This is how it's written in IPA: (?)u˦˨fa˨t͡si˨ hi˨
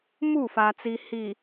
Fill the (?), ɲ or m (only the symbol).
m